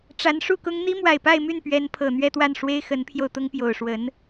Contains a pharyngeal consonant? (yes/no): no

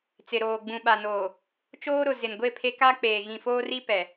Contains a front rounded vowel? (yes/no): no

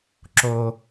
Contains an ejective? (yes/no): no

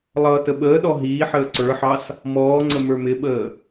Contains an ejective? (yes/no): no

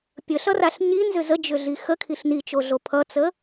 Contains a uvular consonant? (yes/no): no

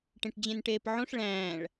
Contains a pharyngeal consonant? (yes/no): yes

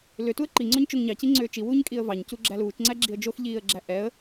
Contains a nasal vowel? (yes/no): no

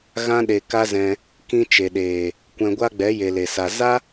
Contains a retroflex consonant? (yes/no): no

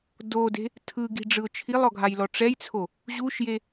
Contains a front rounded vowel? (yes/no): no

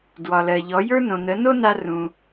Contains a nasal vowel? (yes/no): yes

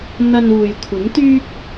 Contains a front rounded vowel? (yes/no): yes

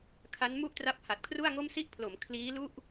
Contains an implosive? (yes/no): no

